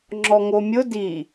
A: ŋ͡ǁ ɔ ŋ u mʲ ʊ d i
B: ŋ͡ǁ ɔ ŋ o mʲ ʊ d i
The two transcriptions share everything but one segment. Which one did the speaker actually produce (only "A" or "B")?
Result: B